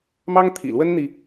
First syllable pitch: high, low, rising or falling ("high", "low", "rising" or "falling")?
high